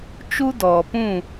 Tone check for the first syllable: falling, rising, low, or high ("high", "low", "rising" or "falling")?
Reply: high